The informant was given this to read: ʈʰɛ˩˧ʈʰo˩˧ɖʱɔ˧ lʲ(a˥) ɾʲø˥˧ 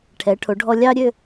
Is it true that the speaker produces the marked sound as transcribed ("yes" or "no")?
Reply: no